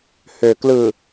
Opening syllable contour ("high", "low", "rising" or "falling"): low